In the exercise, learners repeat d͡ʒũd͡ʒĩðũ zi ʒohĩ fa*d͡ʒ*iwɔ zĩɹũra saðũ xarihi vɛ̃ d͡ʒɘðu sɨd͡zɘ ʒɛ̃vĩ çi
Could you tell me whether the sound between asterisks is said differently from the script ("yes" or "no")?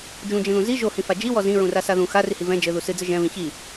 no